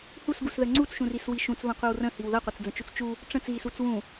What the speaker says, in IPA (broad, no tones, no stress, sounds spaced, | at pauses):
h u s ɡ u s ð ə ŋ͡ǀ u t͡s ʃ ũ r i s w i ʃ ũ t͡s β ə̃ qʷ i w r ə̃ h i w ð ɐ qʷ ɐ t͡s d͡z ə̃ t͡ʃ u t͡s t͡ʃ u | ʈ͡ʂ ə̃ t͡s ɣ i s u t͡s w ũ